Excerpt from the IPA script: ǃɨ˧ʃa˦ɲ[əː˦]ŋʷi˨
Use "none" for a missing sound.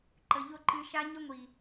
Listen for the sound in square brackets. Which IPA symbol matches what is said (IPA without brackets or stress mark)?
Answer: ə˦